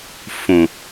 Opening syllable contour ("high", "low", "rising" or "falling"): low